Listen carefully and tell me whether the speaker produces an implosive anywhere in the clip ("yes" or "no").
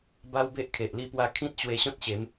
no